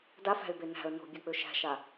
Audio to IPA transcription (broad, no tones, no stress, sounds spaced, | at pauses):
d a f æ̤ ɪ̯ b e n æ̤ ə̯ n o̤ bʲ a k͡p ø ʃ æ̤ ʃ a